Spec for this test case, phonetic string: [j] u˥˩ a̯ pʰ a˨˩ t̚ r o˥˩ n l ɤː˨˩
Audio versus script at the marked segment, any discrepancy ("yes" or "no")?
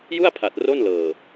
no